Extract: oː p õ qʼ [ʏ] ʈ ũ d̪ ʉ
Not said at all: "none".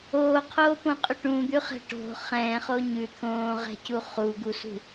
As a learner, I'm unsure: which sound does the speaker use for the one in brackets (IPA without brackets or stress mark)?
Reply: ʏ